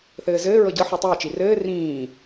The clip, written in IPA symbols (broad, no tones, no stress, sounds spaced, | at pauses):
θ ɘː z ɘː ɹ ɤ ɟ ɤ ħ u tˤ ɘː t͡ʃ i r ɘː r ĩː